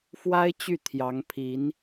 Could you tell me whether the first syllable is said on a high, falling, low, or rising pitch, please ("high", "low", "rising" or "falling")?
high